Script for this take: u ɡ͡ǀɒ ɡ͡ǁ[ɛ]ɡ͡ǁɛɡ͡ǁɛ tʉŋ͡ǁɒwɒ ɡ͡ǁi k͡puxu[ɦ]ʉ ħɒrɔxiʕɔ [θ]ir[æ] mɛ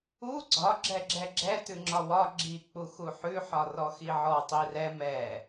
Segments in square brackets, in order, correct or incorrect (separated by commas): correct, incorrect, incorrect, incorrect